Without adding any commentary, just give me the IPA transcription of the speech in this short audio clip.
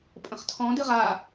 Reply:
pʼ ə̃ χ tʰ ɔ̃ d ɨ ʁ a

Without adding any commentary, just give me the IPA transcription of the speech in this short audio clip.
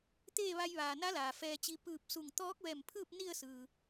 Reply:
t̪ eː˥˨ ʋ a˧ j ʋ aː˩ n a˧˥ l aː˩ f ɛː˧ t͡ɕ i˧ p ɯː˧˩ p̚ s u˧˩ ŋ t̪ ɔː˧˥ k̚ ʋ ɛː˧˩ m pʰ ɯː˥˨ p̚ n i˥˨ ə̯ s ɯː˩

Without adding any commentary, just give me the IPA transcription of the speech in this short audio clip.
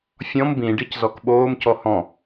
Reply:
fʲ ɔ̃ m b ĩ ɖ i c z ɔ k ɓ oː m c ɔ h ɔ̃

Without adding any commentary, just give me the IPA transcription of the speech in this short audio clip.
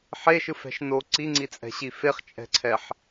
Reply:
ħ e ʃ ɯ f ɛ̤ ʃ n o ǀ i ŋ͡ǀ i t͡sʼ ɛ̤ ɕ i f e χ t͡ʃʼ ɛ̤ ǀʰ ɛ ħ

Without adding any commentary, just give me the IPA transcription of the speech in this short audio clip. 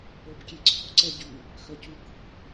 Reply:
o b kʲ e ǀ ɔ̤ ǀ ɛ ɟ y | x œ c u k ṳ

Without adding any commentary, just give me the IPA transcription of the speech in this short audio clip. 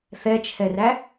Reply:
θ ɛ t͡ʃʰ ɛ r æ

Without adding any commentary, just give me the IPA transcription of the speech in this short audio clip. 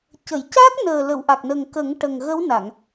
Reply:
c ə˨˩˨ j c a˦˥ k̚ n əː˨˩ l ə˨˩˨ w ʔ a˨˩ k̚ n ə˨˩ ŋ k ə˨˩˦ ŋ ʈ ə˨˩ ŋ ɣ ə˧˥ w n a˨˩˨ ŋ

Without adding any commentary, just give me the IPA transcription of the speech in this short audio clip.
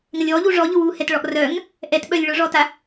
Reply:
ŋ ɐ lʲ ɔ ʎ u ʐ ɔ ʎ ʊ w u h ɛ t ɭ ɔ ʔ r œ ŋ | ʔ ɛ t ɓ œ lʲ ɭ ʊ ʐ ɔ t a

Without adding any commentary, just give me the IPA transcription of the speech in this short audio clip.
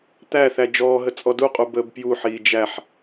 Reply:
t̪ æ θ æ d͡ʒ ɔː ɦ ə t͡sʼ ɔ d u qʼ u b əː b p j u ħ iː d͡ʒ æ ħ

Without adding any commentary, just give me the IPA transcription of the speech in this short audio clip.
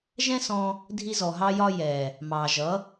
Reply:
ʒ ɛ̃˦ s ɔ̃˧ | dʱ i˧ z ɔ˨ ɦ ɑ˧ j ɒ˧ j ɛ˨ | m ɑ˨ ʒ ʌ˨˦

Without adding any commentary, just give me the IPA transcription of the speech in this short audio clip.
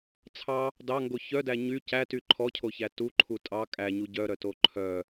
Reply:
t͡sʰ ɑ | d ɑ ŋ ɡ o ç œ d æ ɲ y c æ t y ǃʰ ɔ cʰ o ç æ t u ǃʰ u tʼ ɑ kʼ æ ɲ u ɟ œ ɾ œ t o ǃʰ œ

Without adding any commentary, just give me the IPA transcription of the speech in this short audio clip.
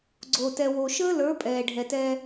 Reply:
ɡ͡ǀ oː˨ t ɛ˨ w o˨ ʃ əː˦ l ə˞˨˦ pʼ ɛː˨ ɖʱ ɛ˨ t ɛ˦

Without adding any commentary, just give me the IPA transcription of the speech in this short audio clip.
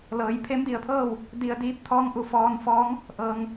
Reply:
l ɤː˩˧ j pʰ e˧˥ m d i˩ ə̯ pʰ ɤː˥˨ w | d i˧ ə̯ d iː˧˥ p̚ t̪ʰ ɔː˧˥ ŋ ʔ u˩ f ɔː˧ n f ɔː˧˥ ŋ | ʔ ɤː˩ ŋ

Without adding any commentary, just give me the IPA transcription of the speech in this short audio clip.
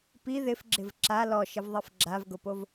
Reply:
p i ð ɪ f ɡ͡ǁ ɪ v ǁ a l ɔ ʃ ɪ v ðˤ e f ɡ͡ǁ a v ɡ ʊ p o v

